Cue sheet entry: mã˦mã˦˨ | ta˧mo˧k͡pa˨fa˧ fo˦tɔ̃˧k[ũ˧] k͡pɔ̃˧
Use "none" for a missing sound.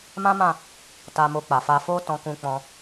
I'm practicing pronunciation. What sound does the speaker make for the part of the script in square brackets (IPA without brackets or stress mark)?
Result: ũ˧